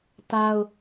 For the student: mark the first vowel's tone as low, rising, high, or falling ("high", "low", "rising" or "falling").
high